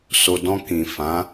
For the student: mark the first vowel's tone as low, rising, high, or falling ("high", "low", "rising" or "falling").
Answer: low